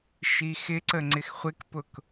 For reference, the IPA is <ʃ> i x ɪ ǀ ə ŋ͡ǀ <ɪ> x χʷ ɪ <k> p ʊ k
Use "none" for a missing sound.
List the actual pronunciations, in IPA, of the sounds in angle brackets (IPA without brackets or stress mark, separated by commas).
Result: ʃ, ɪ, k